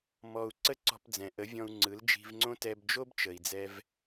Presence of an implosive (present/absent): absent